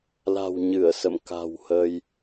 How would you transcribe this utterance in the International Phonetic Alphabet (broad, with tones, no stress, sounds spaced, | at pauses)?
l a̤˨˩ w ɲ ɨ˧˩ ə̯ s ə̰˧˨ m k a̤˨˩ w h ə˧ j